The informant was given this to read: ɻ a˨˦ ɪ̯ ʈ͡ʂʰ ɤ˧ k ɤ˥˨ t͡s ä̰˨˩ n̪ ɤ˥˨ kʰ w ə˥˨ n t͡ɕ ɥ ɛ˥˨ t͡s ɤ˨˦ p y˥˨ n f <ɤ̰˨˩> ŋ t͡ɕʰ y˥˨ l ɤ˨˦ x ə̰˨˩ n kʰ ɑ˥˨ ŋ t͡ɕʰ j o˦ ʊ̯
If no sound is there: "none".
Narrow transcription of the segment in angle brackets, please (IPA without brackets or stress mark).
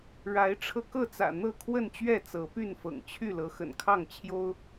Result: ɤ̰˨˩